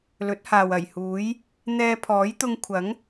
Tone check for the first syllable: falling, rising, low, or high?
rising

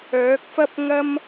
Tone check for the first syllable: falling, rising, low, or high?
rising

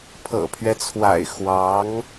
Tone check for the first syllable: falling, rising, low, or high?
low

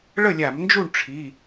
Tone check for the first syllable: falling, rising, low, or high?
falling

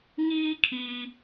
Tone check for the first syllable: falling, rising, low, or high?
high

